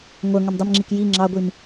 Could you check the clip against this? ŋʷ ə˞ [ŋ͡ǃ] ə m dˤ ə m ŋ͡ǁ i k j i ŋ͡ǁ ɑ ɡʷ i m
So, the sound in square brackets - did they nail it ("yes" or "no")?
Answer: no